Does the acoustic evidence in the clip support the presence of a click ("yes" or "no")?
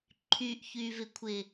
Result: yes